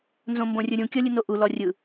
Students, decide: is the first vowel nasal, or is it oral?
nasal